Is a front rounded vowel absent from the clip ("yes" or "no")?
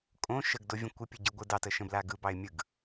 yes